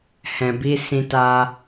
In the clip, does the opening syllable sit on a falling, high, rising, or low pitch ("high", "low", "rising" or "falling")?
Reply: low